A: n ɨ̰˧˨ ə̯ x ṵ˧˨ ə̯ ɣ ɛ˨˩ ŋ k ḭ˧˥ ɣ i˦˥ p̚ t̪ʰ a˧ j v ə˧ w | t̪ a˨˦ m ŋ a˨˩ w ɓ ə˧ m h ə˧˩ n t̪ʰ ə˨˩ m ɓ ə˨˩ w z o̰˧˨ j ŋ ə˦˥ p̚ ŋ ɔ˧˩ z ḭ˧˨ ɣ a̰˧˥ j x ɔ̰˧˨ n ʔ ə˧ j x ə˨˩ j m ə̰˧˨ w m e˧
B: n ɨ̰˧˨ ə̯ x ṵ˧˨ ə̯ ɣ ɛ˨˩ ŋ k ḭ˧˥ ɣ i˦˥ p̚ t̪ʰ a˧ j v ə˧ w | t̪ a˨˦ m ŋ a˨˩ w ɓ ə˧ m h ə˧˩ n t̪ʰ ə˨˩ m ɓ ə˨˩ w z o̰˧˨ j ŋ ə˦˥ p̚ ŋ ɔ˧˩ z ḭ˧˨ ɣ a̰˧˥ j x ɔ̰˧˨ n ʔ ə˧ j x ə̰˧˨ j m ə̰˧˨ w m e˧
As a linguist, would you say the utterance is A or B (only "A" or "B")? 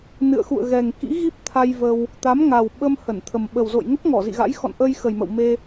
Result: A